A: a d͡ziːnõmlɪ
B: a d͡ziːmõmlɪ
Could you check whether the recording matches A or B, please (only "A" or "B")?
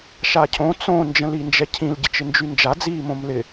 B